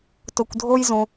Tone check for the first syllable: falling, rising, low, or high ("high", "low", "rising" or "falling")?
low